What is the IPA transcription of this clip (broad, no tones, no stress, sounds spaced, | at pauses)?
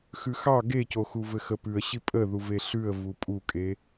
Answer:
x ʉ x ɑ ɡ e c o x u v ɘ x ə p ʉ ə̯ ɕ i pʼ ə ð u v e ɬ ʉ ə̯ v u pʼ u kʼ e